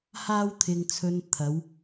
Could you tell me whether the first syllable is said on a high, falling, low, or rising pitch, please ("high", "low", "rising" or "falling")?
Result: high